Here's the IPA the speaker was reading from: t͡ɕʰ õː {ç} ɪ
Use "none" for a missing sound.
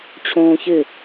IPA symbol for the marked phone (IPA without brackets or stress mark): ç